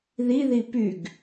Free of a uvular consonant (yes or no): yes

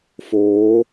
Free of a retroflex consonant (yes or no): yes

